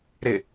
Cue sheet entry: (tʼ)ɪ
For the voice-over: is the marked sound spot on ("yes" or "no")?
no